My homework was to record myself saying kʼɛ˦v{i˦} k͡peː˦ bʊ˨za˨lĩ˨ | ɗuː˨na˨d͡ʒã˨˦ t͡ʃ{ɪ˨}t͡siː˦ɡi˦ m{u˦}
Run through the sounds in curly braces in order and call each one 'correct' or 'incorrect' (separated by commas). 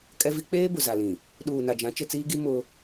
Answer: correct, incorrect, incorrect